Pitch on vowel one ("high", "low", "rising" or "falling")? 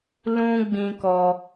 high